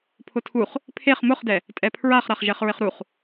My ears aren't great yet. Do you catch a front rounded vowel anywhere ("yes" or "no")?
no